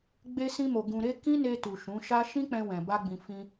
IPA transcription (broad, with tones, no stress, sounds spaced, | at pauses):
ɡ͡b e˧ s ĩ˧ m o˨ ɡ ũ˨ ɾ e˧ k ĩ˦ n e˧ t u˨ ʃ ũ˨˦ ʃ a˦ ʃ ĩ˦ k͡p ɛ̃˧ w ɛ̃˨ b a˧ ɡ͡b ĩ˨ f ĩ˧